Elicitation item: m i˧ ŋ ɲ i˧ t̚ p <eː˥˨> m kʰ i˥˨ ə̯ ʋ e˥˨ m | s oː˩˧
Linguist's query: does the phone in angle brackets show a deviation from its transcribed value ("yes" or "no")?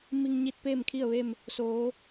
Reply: no